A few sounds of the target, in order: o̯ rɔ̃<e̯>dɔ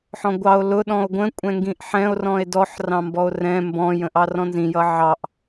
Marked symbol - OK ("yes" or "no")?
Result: yes